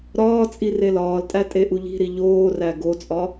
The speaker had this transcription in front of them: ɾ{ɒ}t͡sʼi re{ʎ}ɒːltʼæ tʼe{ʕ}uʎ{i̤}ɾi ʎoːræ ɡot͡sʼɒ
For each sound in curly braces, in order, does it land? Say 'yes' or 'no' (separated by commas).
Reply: no, no, no, yes